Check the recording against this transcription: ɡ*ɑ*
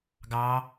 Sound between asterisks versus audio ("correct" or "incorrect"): correct